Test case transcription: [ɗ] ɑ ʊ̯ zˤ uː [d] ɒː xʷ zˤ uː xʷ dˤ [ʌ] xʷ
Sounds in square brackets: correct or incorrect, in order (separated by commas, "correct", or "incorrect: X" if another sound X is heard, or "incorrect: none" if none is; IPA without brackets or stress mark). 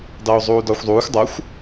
incorrect: d, correct, correct